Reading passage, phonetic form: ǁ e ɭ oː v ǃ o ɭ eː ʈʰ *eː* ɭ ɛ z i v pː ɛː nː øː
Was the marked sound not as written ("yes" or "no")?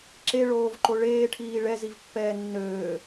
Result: yes